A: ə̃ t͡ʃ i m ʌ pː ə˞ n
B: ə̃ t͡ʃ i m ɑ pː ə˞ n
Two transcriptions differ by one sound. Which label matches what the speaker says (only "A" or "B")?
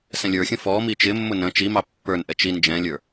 B